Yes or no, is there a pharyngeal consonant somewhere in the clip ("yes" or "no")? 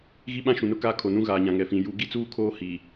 no